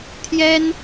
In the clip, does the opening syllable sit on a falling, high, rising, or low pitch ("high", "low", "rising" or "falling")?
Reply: high